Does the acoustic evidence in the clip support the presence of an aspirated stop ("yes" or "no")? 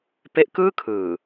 yes